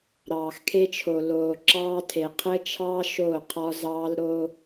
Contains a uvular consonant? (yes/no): yes